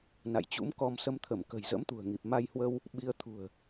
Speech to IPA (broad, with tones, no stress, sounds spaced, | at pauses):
n a̰˧˨ j t͡ɕ ṵ˧˥ m k ɔ˧ m s ə˧ m t̪ʰ ə˧˩ m k ə̤˨˩ j z ə̰˧˥ m t̪ ṳ˨˩ ə̯ ŋ i˨˩ p̚ m a˧ j h w ə˧ w | ɓ i˧ ə̯ t̪ʰ ṳ˨˩ ə̯